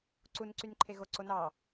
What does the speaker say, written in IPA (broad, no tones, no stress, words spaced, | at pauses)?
ǀunǀynǃʰe ɣoǀo nɑ